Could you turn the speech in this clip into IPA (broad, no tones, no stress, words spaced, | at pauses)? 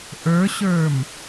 ʔə˞ɕə˞m